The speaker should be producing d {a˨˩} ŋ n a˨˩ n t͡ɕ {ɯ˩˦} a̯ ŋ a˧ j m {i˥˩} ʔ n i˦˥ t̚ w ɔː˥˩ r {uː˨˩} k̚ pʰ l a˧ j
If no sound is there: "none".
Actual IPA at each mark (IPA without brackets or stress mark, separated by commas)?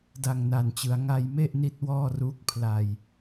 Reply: a˨˩, ɯ˩˦, e˥˩, uː˦˥